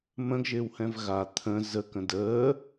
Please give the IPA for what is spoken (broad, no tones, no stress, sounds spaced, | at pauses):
m ə̃ ɡ ʒ ɪː w h ɛ̃ v ɣ a t̪ʰ ə̃ z ə k ə̃ d əː